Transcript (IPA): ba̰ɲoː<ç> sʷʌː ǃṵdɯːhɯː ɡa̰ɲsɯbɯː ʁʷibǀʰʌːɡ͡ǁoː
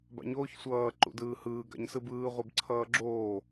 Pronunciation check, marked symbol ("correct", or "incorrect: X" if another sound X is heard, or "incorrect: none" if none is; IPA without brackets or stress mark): correct